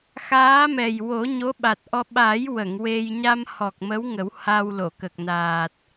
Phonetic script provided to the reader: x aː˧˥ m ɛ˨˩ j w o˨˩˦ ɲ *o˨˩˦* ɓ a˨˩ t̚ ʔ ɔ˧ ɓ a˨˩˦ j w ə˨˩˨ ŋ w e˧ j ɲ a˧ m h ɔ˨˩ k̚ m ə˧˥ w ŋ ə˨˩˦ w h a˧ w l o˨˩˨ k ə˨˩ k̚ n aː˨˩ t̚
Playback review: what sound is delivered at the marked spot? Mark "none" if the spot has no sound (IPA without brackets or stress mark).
o˧˥